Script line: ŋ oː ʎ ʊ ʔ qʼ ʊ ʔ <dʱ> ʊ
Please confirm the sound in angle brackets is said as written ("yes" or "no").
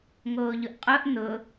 no